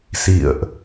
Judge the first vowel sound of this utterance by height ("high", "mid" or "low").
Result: high